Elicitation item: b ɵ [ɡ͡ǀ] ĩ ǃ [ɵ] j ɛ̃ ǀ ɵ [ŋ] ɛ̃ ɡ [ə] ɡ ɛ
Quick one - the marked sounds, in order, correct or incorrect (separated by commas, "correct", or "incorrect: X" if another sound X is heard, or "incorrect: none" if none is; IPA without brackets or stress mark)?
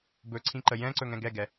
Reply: incorrect: ǀʰ, incorrect: ə, correct, incorrect: ɛ